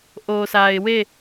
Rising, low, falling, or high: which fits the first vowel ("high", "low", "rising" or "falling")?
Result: low